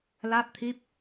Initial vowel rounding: unrounded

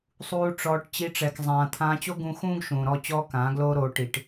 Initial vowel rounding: rounded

